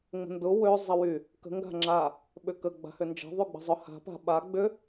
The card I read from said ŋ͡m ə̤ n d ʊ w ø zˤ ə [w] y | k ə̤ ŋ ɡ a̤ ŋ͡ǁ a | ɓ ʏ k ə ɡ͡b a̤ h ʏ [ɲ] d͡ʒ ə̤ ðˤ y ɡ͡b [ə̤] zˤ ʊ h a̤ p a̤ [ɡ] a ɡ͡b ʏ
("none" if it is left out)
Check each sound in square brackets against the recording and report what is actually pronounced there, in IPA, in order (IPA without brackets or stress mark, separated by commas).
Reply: w, n, ə̤, ɓ